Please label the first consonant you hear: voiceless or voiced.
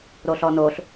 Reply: voiced